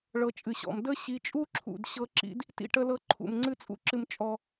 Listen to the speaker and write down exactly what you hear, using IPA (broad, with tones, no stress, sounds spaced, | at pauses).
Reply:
ɭ ɤ˨ t͡ʃʼ ɨ˩ ɕ ɔ̰˩ m d ə˥ ɕ i˨ t͡ʃʼ u˦ ǁʰ ṵ˩ d ɕ ɤ˦ ǁ ḭ˦ d | t ḭ˥ ʈ ə˦ l ɤ˦ ǃʰ ṵ˩ m ŋ͡ǀ ɨ˦ t͡sʼ ṵ˦ ǁ ɨ˨ m t͡ʃʼ ɔ˩